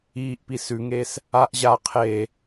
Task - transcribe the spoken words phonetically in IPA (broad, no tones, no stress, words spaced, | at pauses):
iːʔpi sʉŋeːs | aʔ ʑa qʰeː